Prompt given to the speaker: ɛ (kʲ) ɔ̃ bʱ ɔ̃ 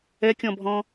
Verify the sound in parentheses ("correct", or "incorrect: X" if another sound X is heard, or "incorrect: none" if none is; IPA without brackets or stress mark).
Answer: correct